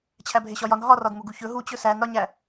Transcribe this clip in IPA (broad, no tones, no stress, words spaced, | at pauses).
t͡ɕʰæbʱeɕɒjɒn ɦɒrɒd muɡuçɵ ɦut͡ɕɵ sænɾɒɲæ